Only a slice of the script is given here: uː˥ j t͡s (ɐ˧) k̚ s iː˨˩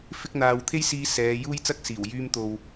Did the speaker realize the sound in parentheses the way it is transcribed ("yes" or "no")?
no